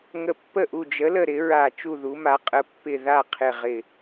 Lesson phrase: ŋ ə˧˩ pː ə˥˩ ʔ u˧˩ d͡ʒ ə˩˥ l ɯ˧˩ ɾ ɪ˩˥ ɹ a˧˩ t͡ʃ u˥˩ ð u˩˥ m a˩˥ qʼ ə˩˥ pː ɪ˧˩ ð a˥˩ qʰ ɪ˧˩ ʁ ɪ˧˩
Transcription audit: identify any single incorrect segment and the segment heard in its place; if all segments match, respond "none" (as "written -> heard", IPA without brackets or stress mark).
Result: ɯ˧˩ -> ə˧˩